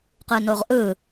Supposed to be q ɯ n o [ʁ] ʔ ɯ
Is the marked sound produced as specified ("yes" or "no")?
yes